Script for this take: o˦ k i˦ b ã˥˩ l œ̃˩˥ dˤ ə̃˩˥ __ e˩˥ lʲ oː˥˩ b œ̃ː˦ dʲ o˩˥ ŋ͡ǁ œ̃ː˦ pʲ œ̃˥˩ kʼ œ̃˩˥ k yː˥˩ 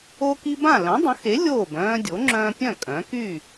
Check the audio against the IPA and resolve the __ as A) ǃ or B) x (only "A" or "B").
B